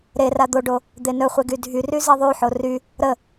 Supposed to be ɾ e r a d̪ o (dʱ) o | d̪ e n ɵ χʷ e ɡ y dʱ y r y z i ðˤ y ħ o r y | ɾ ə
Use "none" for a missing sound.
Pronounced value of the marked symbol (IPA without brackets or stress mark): ɖ